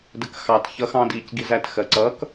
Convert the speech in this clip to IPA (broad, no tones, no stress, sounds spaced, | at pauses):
d ə k x ɑ t ç ʌ x ɑ̃ d iː c ɡ i z æ t x ɜ ǀ ʌ k